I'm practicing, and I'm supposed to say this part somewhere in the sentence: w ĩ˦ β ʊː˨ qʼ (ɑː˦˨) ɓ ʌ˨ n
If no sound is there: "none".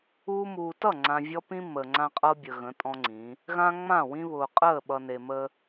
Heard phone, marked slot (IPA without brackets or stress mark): əː˦˨